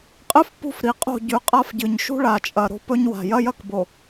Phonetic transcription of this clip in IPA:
qʼ ɨ˦ f p ṳ˦ f ɾ i˨ qʼ o̤˦˨ ɟ ʉ˨˦ qʼ a˦ f ɟ ɨ˨ ɲ ʃ ṳ˦ ɭ a˨ t͡ʃʼ ɐ˨ ɾ o̤˦ p ɵ˦ ɲ w a̤˨ j ɐ˦ j ɐ˦ k b o˨

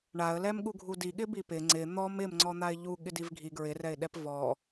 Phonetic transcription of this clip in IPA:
ɳ a ə̯ l ɛ m ɠ u ɡʱ u d i ɠ ɪ b i p ɪ ŋ͡ǀ ɪ n̪ ɔ m ɪ m ŋ͡ǀ ɔ n̪ a ɪ̯ ʎ u ɠ ɪ d i v ɡʱ i ɡ ɹ ɪ r ɛ ɪ̯ ɗ ɛ p v ɔ

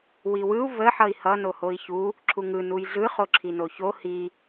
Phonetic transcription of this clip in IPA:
w i w ɯ u̯ v ə ħ ʌ i̯ h ʌ n o h o i̯ ç u | ǁʰ u ŋ ɯ n u j ɮ ɯ χ o ǁʰ i n o ç o h i

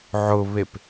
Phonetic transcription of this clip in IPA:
ʕ ʊ β e p

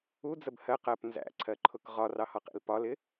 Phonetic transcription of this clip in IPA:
u d͡z ə b h ɜ q ɜ p n z æ̰ ǀʰ ɜ ǃʰ ʊ k ʁ ɒ r ɑ h ɒ q ḭ l p ɒ l ɪ

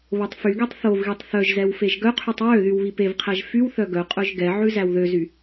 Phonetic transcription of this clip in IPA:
β o tˤ f y ɡ e tˤ θ o v ɣ i tˤ θ œ ʒ z ɛ w f e ʒ ɡ œ qʰ y tˤ w ø ð y w β i p e v qʰ æ ʒ f y w θ œ ɡ œ qʼ œ ʒ ɡ ɛ ʕ ʉ z æ w ð ø z y

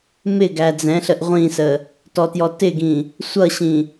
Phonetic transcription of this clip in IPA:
m ɪ ɡ æ d͡z ɛ̃ ɬ ə ʔ ʁʷ ĩ s ə | t ɔ t j ɔ t ɪ ɡ ĩ | sʷ ʌ ɕ ĩ

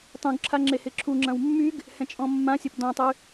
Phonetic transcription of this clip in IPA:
tˤ ũ ɡ ǁʰ a ŋ͡ǁ e h ɪ ǁʰ u ŋ͡ǁ ɐ̃ w mː y ɡ | h ɛ̃ t͡ʃʼ ɔ̃ mː ã sʲ ɐ p d ɔ̃ tˤ y

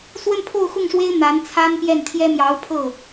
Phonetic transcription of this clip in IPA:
s w ə˥˧ n pʰ o˥˧ ʊ̯ x ʊ˥˩ ŋ ʂ w e˥ ɪ̯ n̪ a˧˥ n t͡sʰ a˥ n p j ɛ˥˩ n t̪ʰ j ɛ˥ m j ɑ˧˥ ʊ̯ pʰ ɤ˥˩

